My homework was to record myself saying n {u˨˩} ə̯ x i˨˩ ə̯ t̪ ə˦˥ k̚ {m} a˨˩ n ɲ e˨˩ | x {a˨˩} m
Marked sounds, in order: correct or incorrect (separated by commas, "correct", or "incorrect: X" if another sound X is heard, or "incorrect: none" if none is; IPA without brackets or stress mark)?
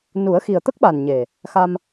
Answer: incorrect: u˨˩˦, incorrect: ɓ, incorrect: a˧